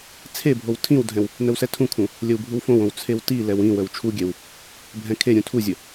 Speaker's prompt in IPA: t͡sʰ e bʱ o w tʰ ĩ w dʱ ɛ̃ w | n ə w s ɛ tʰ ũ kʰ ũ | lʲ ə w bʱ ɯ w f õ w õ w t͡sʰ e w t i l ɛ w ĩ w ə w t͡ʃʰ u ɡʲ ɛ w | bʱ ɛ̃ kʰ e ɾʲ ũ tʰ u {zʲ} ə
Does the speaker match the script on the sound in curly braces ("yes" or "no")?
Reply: yes